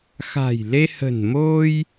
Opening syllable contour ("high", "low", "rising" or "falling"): low